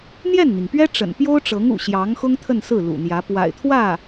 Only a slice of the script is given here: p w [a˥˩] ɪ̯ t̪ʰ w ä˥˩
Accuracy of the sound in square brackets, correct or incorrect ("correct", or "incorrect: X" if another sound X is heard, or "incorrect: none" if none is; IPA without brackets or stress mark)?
incorrect: a̰˨˩